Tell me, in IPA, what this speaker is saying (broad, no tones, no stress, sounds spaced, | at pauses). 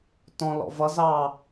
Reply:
t ɔ̃ l ɔ̰ v ʌ z ɑ